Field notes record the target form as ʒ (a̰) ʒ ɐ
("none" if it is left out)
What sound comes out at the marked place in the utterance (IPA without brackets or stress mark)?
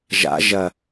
a̰